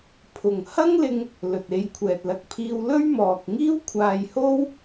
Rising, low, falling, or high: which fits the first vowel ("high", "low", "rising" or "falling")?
low